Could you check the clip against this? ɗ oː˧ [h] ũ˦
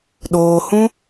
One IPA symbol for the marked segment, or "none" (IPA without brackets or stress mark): h